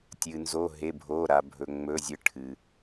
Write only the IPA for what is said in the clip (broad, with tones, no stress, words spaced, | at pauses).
tʲɨ˩nzo˩˧˩ ɦe˩˧˩bʱo˩˧˩ ɾa˩bʱɵ˩ŋ͡mɵ˩˧˩zʲɨ˩˧˩ ʈʰɨ˩